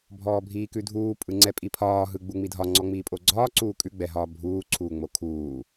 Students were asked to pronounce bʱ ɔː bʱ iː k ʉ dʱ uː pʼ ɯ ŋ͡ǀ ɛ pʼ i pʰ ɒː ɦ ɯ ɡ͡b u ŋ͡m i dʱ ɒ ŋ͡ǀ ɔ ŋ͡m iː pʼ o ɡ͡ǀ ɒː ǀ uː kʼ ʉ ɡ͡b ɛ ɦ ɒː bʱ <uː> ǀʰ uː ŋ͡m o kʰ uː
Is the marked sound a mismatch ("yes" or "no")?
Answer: no